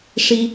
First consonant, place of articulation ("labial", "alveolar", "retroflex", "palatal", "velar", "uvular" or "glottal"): retroflex